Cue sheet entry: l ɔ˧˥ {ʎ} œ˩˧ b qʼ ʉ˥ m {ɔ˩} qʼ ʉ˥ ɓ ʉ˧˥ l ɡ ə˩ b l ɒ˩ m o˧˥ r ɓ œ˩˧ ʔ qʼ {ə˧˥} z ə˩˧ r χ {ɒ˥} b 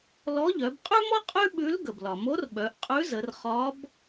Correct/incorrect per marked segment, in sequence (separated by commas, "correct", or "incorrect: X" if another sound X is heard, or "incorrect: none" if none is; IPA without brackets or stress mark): correct, incorrect: ɔ˥, incorrect: ʉ˧˥, incorrect: ɒ˧˥